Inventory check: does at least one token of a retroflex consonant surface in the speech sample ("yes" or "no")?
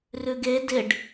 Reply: yes